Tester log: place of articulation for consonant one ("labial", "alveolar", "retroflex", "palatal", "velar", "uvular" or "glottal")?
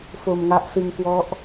labial